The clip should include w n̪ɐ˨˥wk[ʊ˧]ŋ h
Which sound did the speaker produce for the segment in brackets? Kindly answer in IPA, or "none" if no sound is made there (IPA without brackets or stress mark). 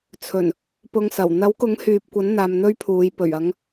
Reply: ʊ˨˥